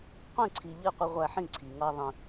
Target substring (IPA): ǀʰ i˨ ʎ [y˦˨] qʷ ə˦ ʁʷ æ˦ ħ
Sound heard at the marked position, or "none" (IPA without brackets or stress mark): i˦˨